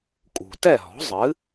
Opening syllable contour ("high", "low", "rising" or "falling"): low